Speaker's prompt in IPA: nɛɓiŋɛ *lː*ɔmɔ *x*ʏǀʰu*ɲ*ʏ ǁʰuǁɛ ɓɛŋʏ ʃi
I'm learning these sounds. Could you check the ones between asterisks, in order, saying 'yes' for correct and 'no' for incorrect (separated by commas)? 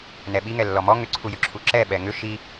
yes, no, no